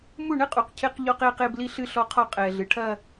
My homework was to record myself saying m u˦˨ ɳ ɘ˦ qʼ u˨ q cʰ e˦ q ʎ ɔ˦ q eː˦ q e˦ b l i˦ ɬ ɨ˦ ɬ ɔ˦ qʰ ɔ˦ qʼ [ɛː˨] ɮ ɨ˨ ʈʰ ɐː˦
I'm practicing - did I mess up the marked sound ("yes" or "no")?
no